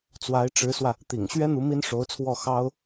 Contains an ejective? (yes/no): no